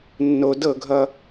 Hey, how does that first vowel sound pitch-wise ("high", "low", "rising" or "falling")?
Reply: low